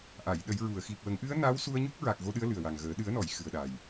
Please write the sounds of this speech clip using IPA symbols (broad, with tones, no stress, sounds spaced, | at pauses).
ʔ a˨˩˨ j ɗ ə˨˩˦ j ɹ u˨˩˨ ə̯ x i˨˩ p̚ w ə˨˩˦ ŋ ʔ ɨ˧˥ ə̯ n a˧˥ w s u˧ ə̯ ɲ u˦˥ k̚ ɹ a˨˩ k̚ ɣ o˧ ɗ ɨ˧˥ ə̯ l ɨ˨˩ ə̯ w a˨˩ ŋ ɣ əː˨˩˦ ɗ ɨ˨˩˦ ə̯ n ɔ˨˩˨ j x ɨ˨˩ ə̯ ɗ a˨˩ j